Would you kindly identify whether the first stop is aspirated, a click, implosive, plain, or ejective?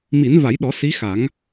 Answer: implosive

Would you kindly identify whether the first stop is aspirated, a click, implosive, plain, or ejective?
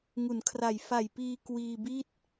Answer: aspirated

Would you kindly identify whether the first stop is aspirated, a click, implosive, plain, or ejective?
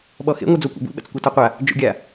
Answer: implosive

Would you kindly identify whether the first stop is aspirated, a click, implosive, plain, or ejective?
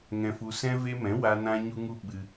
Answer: implosive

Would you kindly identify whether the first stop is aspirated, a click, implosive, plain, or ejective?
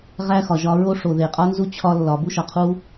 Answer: ejective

